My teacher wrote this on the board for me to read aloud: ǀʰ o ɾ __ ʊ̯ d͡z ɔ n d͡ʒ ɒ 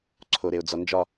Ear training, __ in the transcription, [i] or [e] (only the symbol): e